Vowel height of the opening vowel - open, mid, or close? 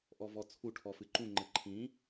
mid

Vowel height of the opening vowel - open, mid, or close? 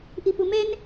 close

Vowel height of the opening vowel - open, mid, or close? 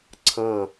open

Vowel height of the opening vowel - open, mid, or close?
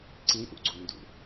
close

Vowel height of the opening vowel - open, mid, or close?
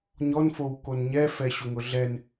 mid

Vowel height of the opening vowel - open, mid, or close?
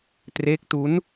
mid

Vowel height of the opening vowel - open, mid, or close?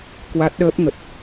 open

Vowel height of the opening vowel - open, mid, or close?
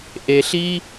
mid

